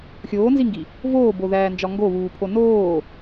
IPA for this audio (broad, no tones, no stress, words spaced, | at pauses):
xʲoːnziŋɡi | voːboðæːnd͡ʒɒ ŋɡoβuːpʰo noː